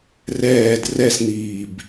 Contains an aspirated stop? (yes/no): no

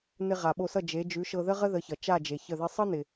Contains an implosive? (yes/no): yes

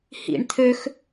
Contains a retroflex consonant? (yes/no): yes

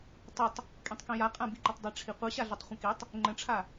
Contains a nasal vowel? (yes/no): yes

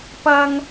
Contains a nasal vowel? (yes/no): no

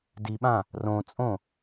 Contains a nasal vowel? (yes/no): yes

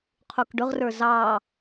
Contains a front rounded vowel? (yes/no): no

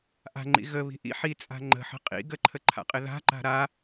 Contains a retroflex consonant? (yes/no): no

